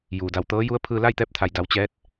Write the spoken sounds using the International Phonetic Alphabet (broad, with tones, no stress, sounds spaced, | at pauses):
j uː˩ d a˧˩ w t̪ ɤː˧˥ j u˧˥ ə̯ pʰ ɯː˧ l a˥˨ j t̪ ɛː˧˥ p̚ t̪ʰ a˩ j d a˩˧ w t͡ɕ ɛː˧˥ t̚